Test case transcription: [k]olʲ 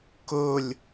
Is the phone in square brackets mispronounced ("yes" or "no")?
no